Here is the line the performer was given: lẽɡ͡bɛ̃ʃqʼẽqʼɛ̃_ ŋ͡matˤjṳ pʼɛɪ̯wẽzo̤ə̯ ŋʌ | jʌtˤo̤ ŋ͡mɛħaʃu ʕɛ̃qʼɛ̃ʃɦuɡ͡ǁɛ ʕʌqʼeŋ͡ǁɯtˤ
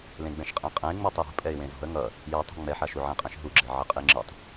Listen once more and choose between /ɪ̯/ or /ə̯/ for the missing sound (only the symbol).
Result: ɪ̯